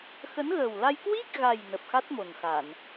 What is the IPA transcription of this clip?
x ə˨˦ n ɣ əː˨˩ w l a˧ j k w i˦˥ k̚ ɣ a˨˩ j n ə˨˩ p̚ x a˦˥ t̚ m o˨˩ n x a˧˩˨ n

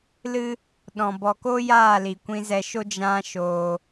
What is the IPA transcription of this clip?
l ɨ˧ | ɗ ɔ̃˨ b ɔ˨ k o˦ j aː˦˨ l i˨ kʷ ĩ˧ z ɛ˧ ʃ o˦ d͡ʒ ã˧ ʃ oː˧

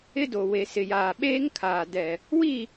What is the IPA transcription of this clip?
ɪ˦ d o˨ w e˨ s ɪ˨ j aː˨ ɓ eː˦ ŋ kʰ aː˨ d ɛ˨ | w i˦˨

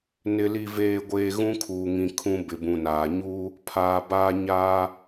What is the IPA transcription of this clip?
n ɪ˨ l i˨ v eː˨ ɡʷ eː˨ ɣ ũ˦ kʰ uː˨ ŋ ĩ˨ kʰ ũ˦ b ɪ˨ b ũ˨ n aː˨ ɲ uː˦ | pʰ aː˨ b aː˦ ɲ aː˦

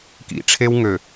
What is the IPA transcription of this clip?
k ḭ˨ ʈ͡ʂʰ e˦ w ŋ ø˨

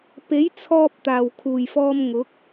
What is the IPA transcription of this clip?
p e˨˥ j t͡sʰ ɔː˧ p̚ t̪ aː˨˩ w kʰ uː˨˩ j f ɔː˧ m ŋ ʊ˨˥ k̚

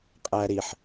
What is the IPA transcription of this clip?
qʼ æ ɾ i ħ

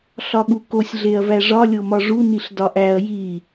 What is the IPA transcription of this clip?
ɬ ɒ ɠ u k o sʲ ɮ e ɐ̯ v æ ʐ ɒ lʲ o m ɒ ʐ u n i ɬ d ɒ ʔ æ ɐ̯ j i

